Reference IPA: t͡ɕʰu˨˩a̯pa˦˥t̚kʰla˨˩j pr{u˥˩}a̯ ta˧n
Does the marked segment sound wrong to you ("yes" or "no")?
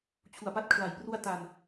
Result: yes